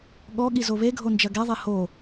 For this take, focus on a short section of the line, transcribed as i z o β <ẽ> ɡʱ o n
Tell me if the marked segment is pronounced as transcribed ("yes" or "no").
no